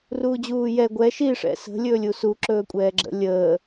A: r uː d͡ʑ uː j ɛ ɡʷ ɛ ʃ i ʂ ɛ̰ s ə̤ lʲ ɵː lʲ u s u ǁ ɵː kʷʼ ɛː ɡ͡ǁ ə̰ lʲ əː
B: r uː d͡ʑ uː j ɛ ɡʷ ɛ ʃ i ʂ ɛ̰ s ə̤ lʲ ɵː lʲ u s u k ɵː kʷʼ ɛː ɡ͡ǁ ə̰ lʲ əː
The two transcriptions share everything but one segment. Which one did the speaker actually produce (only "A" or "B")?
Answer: A